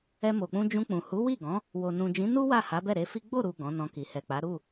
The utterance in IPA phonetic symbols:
ɛ˧ m o˨ k͡p ũ˧ d͡ʒ ũ˧ k͡p ũ˨ h u˨˦ w i˦˨ ɡ ɔ̃˨˦ | w o˨ n ũ˨ d͡ʒ ĩ˨˦ n u˦ w a˦˨ h a˨˦ b ɛ˦˨ ɾ e˧ f i˦ ɡ͡b o˦˨ ɾ u˨ ɡ ɔ̃˨˦ n ɔ̃˧ k i˨ h ɛ˨ k͡p a˨˦ ɾ u˦˨

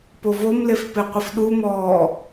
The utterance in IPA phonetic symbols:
p o v o m l e f p e qʷ ɪ f ɗ u m ɔː

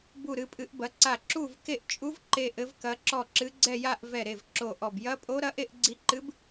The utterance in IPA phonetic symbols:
b u˥˧ ɾ ɨ˦˥ pʼ ɨ˦˥ ʔ b ɐ˦˥ ǀ a˥˧ ǁ u˥˧ v k e˥˧ ʔ t͡ʃʼ u˦˥ v ǃ e˥˧ ʔ ɘ˦˥ v k ɐ˦˥ ǁ ɔ˥˧ ǁ ɨ˦˥ ɡ͡ǀ ɛ˥˧ j a˥˧ ʔ v ɛ˥˧ ɾ e˥˧ v ǁ o˥˧ ʔ ɔ˥˧ b j ɐ˦˥ pʼ o˦˥ ɾ ɐ˦˥ ʔ e˥˧ ʔ ɡ͡ǀ i˦˥ ǃ ɨ˦˥ b

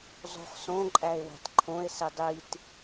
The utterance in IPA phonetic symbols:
zˤ o̤ χ s õ ǃʼ æ e̯ w æ̤ t ǃʰ õ e̯ s i dˤ i t

